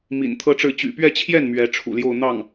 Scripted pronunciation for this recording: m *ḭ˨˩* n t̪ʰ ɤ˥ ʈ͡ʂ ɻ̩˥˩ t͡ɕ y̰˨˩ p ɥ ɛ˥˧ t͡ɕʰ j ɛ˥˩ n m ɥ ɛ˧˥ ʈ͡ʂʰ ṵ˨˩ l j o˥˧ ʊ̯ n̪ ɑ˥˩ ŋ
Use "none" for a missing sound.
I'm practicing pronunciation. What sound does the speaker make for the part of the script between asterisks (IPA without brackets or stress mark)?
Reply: ḭ˨˩